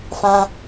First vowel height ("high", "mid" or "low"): low